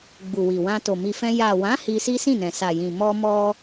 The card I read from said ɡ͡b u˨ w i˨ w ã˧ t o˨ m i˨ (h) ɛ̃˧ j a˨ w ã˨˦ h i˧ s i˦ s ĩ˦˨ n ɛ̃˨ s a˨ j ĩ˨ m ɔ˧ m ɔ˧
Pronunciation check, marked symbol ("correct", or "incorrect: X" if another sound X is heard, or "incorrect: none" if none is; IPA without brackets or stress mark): incorrect: f